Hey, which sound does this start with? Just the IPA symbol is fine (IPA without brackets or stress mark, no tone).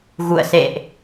ɣ